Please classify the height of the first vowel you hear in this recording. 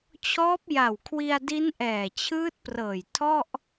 mid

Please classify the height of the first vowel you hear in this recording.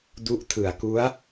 high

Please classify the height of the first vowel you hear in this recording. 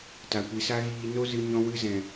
low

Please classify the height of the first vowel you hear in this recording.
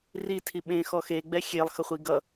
high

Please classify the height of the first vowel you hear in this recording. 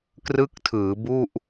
high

